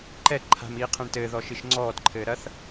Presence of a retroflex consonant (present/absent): present